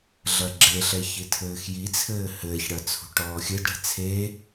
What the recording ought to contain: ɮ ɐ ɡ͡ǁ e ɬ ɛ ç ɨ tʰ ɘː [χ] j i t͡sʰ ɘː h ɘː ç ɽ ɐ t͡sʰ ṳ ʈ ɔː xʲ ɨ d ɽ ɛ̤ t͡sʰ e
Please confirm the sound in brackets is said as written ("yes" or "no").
no